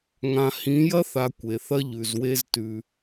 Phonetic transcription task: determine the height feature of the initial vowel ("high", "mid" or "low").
low